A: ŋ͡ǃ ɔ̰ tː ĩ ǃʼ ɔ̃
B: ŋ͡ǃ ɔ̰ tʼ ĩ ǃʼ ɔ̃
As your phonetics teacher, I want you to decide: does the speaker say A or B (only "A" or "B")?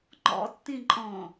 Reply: A